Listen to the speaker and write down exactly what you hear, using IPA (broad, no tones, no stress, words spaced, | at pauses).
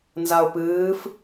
nzaʊ̯pɨːf